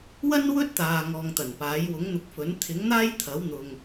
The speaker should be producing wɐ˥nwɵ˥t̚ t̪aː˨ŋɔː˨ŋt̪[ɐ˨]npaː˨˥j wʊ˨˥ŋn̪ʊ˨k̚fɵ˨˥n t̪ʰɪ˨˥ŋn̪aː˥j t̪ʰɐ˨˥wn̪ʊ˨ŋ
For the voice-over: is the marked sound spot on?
no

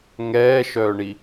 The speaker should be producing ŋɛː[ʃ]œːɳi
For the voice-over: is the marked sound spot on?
yes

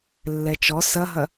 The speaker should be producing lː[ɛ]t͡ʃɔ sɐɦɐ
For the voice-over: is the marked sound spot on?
yes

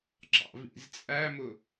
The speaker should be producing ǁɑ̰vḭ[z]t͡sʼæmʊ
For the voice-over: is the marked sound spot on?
yes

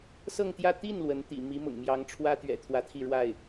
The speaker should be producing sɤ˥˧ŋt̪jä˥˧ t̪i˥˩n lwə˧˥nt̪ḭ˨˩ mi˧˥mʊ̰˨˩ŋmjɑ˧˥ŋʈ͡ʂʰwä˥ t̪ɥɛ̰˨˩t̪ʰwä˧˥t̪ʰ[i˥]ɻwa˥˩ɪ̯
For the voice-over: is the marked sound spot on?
no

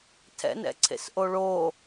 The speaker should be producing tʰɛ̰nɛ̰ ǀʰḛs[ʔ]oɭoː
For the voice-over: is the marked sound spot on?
yes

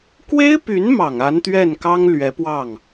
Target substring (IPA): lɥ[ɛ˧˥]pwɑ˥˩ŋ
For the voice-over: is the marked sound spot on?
yes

